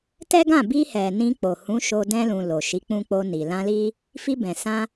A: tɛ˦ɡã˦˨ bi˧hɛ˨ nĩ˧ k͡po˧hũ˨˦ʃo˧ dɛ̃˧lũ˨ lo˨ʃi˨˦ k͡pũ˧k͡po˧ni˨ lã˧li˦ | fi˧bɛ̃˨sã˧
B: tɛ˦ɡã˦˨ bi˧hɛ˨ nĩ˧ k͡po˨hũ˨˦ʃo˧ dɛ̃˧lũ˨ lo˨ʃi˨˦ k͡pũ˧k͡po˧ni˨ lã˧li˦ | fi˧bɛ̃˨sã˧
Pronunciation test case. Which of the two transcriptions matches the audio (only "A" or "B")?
B